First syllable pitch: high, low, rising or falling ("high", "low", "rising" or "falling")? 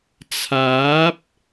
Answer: rising